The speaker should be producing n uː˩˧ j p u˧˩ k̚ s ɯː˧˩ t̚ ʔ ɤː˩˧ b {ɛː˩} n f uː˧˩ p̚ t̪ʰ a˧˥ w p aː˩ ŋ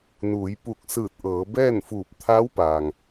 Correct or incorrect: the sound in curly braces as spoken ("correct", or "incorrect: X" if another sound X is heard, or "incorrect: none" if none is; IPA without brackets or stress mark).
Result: incorrect: ɛː˥˨